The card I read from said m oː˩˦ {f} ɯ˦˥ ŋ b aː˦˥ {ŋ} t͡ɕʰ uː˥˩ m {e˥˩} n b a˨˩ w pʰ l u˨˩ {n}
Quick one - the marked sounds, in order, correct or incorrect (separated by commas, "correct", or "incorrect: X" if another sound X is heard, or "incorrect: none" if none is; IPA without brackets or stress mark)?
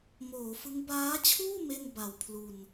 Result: correct, incorrect: none, correct, correct